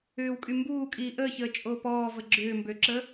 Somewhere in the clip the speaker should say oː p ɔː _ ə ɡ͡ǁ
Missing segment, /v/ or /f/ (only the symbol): v